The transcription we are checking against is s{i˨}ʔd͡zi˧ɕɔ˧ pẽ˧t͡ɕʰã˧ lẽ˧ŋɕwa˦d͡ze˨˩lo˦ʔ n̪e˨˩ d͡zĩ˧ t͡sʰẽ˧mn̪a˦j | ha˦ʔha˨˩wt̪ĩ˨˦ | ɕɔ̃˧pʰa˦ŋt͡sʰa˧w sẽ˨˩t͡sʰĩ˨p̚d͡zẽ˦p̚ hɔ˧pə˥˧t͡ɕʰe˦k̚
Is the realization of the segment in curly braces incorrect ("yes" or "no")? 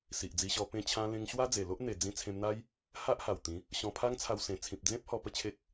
no